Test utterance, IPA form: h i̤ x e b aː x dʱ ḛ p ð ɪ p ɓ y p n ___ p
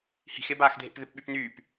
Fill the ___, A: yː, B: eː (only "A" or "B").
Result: A